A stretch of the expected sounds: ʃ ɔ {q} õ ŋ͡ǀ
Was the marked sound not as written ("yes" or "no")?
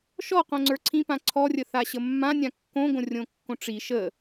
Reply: no